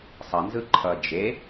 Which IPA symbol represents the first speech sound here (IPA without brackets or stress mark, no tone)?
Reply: sˤ